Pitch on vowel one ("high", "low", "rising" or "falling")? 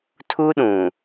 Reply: high